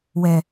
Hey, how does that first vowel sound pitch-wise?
low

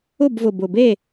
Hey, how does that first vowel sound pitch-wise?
falling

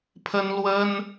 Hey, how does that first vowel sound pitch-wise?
high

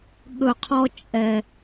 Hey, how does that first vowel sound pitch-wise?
low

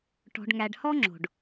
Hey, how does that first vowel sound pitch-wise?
low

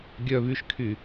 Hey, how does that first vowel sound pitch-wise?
low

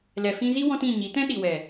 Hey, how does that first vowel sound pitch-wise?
low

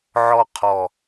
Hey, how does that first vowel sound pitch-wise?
falling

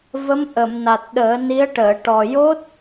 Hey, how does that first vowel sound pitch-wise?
rising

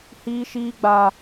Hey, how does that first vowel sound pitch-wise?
high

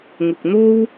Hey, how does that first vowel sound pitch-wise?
low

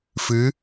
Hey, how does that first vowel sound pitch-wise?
rising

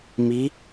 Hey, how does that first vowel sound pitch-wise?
rising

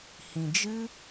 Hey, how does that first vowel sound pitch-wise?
low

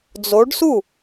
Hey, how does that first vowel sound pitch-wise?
rising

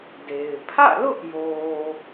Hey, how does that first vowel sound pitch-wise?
low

